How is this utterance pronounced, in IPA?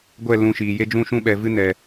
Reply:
ɡʷ ɛ˦˨ l ũ˧ ʃ iː˨ j e˦ d͡ʒ ũ˦ ʃ ũ˦ ɓ ɛ˨ v ɨ˦ n ɛ˨

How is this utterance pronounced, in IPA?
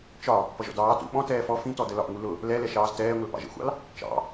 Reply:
t͡ʃ ɒ | p ʌ ʒ ɔ̰ d ɑː t ṵ ɓ ɔ̃ t ɛː f ɔ f ĩ t ɔ d ə l ɒ ʔ ŋ u l ʊ | l ɛ l ɛ ʃ ɑː z t ɛː ŋʷ ə l p ɑ̰ ʒ ə̰ xʷ ɑ̰ l | t͡ʃ ɑ̰

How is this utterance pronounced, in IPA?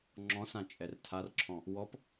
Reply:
ŋ͡ǁ ɔ̃ s ã t͡ʃʼ ɛ r tʰ a r ǁʰ ɔ̃ | w ɔ p

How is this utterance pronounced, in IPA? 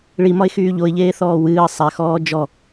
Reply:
ɭ i m ɒ ɪ̯ x yː ʎ o ɪ̯ ʎ eː θ ɔː w ɨː ə̯ sˤ ɛ x ɔː d͡ʒ ɔ

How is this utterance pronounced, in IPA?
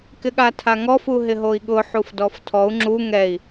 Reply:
k ɪ ɠ a tʰ a ŋ ɔ f u ɦ ɪ ɦ o i̯ ɠ ʊ ħ u f d ɔ f tʰ ɔ u̯ ŋ͡ǁ u ŋ ɛ i̯

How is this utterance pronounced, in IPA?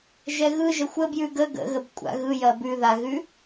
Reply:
ʒ ɛ ɣ ɯ ʒ ə xʷ ə b j ʉ ɡ ə ɡ ə̰ ɣ ə b kʷʼ a̰ ɣ ɯ j ɐ b ʉ ð a ɣ ʉ

